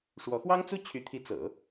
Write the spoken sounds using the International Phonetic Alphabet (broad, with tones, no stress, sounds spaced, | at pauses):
ʂ w ɔ˧˥ x w ɑ˥ ŋ t͡s u˥ t͡ɕʰ y˧˥ t̪ʰ i˧˥ t͡s ɤ̰˨˩˦